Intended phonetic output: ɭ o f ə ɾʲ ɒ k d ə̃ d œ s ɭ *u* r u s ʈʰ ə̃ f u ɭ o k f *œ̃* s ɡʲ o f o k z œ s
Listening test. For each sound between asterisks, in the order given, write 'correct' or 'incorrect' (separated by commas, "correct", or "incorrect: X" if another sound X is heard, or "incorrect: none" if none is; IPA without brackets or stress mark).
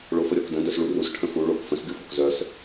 correct, incorrect: ə̃